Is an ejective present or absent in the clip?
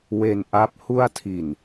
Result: absent